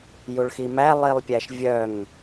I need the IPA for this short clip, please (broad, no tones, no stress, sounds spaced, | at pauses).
j u ɭ x i m æ lˠ i lˠ pʲ æ ʃ vʲ œ ŋ